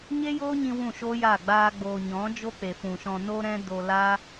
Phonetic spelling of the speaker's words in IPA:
ɲ e˦ j oː˦ ɲ ĩ˧ w ũ˦˨ ʃ oː˦ j aː˦˨ ɡ͡b aː˦ ɡ͡b oː˧ ɲ ɔ̃˨˦ d͡ʒ o˦ k͡p e˨ f ũ˨ ʃ ɔ̃˧ n o˦ ɾ ɛ̃˦ d o˧ l aː˦

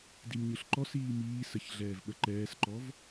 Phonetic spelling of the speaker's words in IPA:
d i m ɲ ɯ ɬ ǃ ɔ s iː m iː s ə ç ɮ ɛː v ɓ ə ǃ ɛː s ǃ ɔ v

